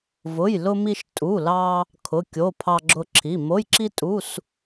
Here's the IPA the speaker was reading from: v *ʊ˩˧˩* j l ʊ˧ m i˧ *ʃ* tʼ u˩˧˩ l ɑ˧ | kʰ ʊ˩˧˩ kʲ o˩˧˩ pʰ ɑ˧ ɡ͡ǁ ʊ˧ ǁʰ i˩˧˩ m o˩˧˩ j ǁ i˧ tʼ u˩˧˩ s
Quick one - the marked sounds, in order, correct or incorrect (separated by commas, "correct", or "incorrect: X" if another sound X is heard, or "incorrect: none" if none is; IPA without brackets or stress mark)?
correct, correct